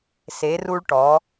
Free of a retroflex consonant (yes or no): no